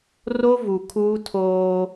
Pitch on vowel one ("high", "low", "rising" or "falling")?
high